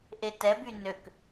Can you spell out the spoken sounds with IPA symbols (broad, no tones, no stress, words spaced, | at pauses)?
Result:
ʔetɛby nøk